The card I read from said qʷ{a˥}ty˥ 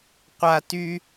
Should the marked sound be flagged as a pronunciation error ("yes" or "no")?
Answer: no